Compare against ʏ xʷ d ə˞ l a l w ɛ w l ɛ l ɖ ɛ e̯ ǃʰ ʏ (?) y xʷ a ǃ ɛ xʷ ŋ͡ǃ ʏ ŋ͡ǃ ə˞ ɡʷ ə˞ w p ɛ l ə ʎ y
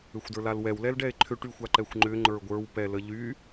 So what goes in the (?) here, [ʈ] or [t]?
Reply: ʈ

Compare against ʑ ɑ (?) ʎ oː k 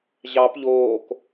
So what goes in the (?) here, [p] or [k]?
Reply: p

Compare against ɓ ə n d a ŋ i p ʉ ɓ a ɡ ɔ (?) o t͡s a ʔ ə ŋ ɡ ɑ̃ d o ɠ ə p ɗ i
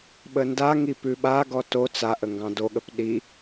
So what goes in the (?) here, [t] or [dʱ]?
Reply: t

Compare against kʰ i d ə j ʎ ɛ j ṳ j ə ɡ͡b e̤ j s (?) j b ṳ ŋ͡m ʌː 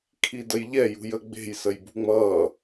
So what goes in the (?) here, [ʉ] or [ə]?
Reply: ə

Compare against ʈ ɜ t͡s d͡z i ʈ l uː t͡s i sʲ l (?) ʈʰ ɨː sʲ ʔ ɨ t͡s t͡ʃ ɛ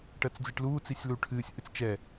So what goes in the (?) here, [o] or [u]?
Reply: u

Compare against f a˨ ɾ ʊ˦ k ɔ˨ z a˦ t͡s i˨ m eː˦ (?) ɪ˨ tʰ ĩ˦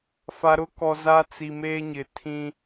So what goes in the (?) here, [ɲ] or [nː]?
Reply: ɲ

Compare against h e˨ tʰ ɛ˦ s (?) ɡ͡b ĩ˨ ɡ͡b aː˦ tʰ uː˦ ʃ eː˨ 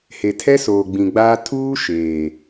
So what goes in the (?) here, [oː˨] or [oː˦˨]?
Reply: oː˨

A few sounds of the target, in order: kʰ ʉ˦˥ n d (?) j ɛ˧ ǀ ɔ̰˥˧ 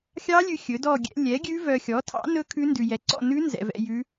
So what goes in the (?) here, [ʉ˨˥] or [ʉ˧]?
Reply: ʉ˧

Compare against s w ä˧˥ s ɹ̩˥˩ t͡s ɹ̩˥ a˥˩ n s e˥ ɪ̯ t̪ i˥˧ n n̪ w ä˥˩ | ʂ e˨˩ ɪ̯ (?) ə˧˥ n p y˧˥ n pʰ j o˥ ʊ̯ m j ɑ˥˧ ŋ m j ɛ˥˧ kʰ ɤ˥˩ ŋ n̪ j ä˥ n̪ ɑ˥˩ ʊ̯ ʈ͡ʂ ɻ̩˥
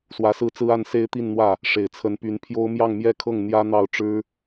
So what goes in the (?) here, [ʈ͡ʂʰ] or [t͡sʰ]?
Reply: t͡sʰ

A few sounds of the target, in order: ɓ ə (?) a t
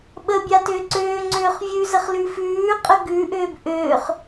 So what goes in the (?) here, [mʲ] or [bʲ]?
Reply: bʲ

